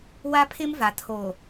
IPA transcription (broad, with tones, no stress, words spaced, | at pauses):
wa˦pʰɪ˦mva˨ tʰo˨